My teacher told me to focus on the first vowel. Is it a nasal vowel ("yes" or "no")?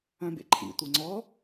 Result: yes